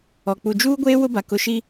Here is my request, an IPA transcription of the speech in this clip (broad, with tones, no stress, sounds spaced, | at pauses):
ɔ˨ k͡p u˨ d͡ʒ uː˦ ɡʷ eː˦ w ʊ˦ b a˨ k ʊ˦ ʃ i˦